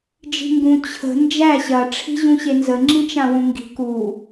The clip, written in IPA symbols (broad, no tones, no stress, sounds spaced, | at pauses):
d͡ʒ i̤ ŋ ɡ ũ t͡ɕʰ ə̤ n d͡ʒ æ ɕ ɐ ʈ͡ʂʰ i̤ ʑ ũ ɕ e n z ə ŋ͡ǁ ĩ t͡ʃ ã w ũ ŋ ɡ i̤ k u